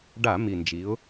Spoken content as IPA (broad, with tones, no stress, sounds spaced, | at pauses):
ɖ a˧˩˧ m i˨˩ n d͡ʒ i˩˧ ʊ̯